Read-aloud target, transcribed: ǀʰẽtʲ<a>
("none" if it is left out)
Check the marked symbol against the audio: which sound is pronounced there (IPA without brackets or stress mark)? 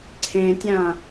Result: ã